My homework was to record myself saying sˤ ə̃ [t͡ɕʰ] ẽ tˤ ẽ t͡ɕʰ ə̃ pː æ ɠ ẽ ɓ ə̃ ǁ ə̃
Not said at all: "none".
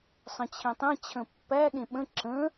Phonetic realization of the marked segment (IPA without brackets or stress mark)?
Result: t͡ɕʰ